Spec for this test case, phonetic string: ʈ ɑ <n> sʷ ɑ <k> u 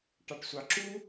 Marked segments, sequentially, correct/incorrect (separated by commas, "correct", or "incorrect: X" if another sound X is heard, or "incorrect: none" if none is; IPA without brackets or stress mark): incorrect: ʈ, incorrect: ǁ